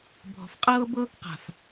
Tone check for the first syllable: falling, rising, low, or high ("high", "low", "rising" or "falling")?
low